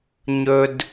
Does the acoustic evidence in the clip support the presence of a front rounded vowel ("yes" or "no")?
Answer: no